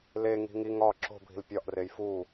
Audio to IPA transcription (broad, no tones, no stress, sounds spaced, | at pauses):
l e ŋ i̤ ŋ i ŋ ɒ ǁ o̤ bʱ i̤ l pʲ ɒ ʔ r e j f u